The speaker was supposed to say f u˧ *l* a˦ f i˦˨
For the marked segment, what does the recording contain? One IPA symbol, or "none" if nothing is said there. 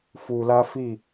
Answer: l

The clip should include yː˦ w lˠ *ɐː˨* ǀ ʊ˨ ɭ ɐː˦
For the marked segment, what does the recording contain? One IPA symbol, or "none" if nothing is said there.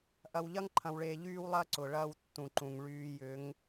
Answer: ɐː˦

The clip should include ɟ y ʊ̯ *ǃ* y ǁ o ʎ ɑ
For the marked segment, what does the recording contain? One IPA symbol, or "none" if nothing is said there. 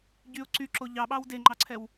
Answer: ǀ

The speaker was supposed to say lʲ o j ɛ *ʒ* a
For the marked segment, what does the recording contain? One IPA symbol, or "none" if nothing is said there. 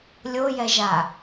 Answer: ʒ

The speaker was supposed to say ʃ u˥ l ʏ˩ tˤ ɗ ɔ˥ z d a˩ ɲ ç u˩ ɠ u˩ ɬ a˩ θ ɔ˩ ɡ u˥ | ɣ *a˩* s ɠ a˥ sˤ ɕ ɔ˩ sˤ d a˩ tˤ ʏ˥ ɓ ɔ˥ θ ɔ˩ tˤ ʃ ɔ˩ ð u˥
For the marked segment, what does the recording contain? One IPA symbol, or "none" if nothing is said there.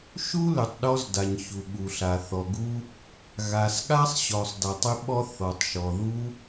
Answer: a˩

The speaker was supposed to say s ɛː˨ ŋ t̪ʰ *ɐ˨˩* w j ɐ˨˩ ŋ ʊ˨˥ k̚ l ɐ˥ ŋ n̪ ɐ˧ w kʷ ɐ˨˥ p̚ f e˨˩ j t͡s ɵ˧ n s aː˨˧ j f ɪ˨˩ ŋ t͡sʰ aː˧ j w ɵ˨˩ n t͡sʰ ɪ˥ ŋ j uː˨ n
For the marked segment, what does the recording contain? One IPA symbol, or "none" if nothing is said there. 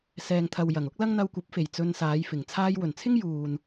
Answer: ɐ˨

